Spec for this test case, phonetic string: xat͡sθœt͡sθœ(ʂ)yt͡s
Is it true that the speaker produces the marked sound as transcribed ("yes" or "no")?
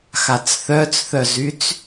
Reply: no